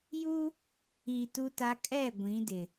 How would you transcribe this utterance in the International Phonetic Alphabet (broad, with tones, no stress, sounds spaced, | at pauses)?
j u˦ | i˨ t u˦ t a˦ kʼ ɛ˦˨ ɡʷ ĩ˨˦ d ɪ˨